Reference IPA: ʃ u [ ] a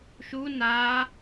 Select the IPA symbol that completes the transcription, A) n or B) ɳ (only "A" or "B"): A